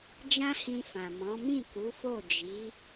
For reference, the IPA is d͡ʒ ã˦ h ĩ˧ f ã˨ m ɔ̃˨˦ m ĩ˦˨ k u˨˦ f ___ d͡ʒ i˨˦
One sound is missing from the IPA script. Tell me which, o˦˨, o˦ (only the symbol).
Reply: o˦˨